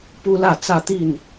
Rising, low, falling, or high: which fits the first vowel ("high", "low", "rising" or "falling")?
high